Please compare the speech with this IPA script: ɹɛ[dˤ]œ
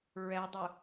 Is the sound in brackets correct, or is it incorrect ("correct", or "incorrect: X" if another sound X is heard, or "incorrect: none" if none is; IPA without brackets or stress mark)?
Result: correct